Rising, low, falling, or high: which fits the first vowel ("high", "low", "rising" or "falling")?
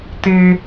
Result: high